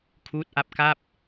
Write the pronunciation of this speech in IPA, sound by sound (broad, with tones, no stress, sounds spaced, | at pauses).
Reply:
kʰ uː˦˥ t̚ ʔ a˦˥ p̚ k a˥˩ p̚